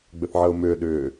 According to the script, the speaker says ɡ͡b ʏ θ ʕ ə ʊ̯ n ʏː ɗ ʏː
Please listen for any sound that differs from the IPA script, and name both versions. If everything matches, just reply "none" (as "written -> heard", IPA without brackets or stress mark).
n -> m